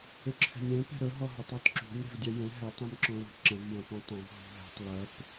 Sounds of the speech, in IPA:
ʏ ǁʰ ɛ̤ nʲ ɛ̃ p ɛ̤ ɾ ɵ ɦ ɔ ɦ ɵ tˤ ɔ t ǁ ṳ nʲ ɾ ɛ̤ v dʲ ɛ j ɛ̃ ɦ ɛ tˤ ũ m ǁ ɔ̃ l o̤ ǁ ɐ̃ v j ɐ̃ p ũ tˤ ɐ̃ v ɦ ṳ ɦ ɛ̤ tˤ l ɐ p

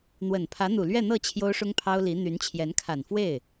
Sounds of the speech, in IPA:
n̪ w ə˨˩ n pʰ ä˧˥ n̪ u˨˩ l ɥ ɛ˥˧ n̪ ɤ˥˩ t͡ɕʰ j o˥ ʊ̯ ʂ ʊ˥ ŋ pʰ ɑ˥ ʊ̯ l i˧˥ n̪ y˧˥ n t͡ɕʰ j ɛ˧˥ n kʰ a˨˩ n f w e˥˩ ɪ̯

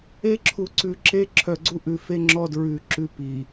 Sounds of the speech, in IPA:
e˦ ǁʰ u˨ ǀ ʉ˨ ǁ e˦ ǁʰ œ˨ ɡ͡ǀ u˦ ʔ ʉ˨ f e˦ ŋ͡ǁ ɔ˦ d ɹ ʉ˨ ǁ ʉ˦ p i˨

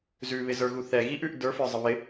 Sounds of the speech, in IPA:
z ʉ β ɪ z ə˞ ɣ u θ ɛ ɣ i ʔ ʉ ʔ d ə˞ f ə˞ zˤ ə β ɪ

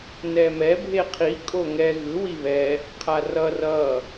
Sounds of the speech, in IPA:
n ɛ m ɛ bʱ e qʰ i kʼ o ŋ ɛ ɣ ɯ w i β ɛ | qʰ a r ʌ r ʌ

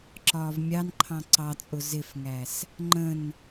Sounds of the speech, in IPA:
ǁ ɒː v mʲ ɑ n ǃʰ ɑ̃ ǀ ɑ t͡sʼ ʊ z ɪ f ŋ æ s | ŋ͡ǃ ə̃ n

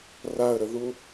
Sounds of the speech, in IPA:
r a ə̯ ɾ ə ð u

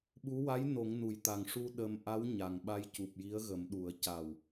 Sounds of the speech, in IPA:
ɓ u˧˥ w a˧˥ j n o˨˩˦ ŋ n u˨˩˨ j t̪ a˨˩ ŋ ʂ u˧ ɗ ə˧ m ʔ a˧˥ w ɲ a˨˩ ŋ ɓ a˧ j c u˨˩ p̚ j i˧˥ ə̯ ɣ ə˨˩˦ m ɗ u˨˩˦ ə̯ c a˨˩ w

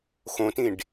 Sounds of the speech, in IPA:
x õ t ĩ ɖ

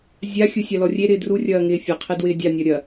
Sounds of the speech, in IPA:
zʲ a xʲ ɯ sʲ a l ɔ rʲ e ɾ ɪː d r u rʲ ɐː ŋ ɪː fʲ ɐ qʰ e d w ɪː dʲ a nʲ ɐ ɾʲ ɐ

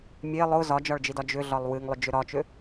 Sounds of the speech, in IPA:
mʲ e lˠ ʊ z ɒ d͡ʒ ɒ ɭ d͡ʒ i d ɒ d͡ʒ ʏ ɮ ɒ lˠ w ɨ ŋ lˠ ʏ d͡ʒ ʏ ɾ ɒ t͡ʃ ʏ

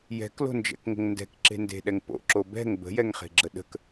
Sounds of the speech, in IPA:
j ɛ̤ k l o̤ n d͡ʒ ɛ̰ k ŋ ə̤ ŋ n d ɛ̤ k ǁ e̤ n d e̤ ɗ ɛ ŋ p o̰ ǁ o b ɛ̤ ŋ b ə̤ j ɛ ŋ χ e̤ ɡ͡ǁ ə ɗ ə̤ k

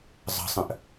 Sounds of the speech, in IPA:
zˤ ə̤ sˤ ə̃ ʔ

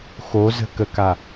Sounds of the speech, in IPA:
x o z ə̤ k ə k a

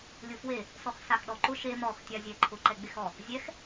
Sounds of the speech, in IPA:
lʲ ʊ f w e | s ɔ x s a x ɗ ɔ ǃ ʊ ʃ e m ɔ x tʲ a zʲ ɛ ǃʰ ʊ ǃ ɛ ɡ͡b e x ɔ | zʲ ɛ x

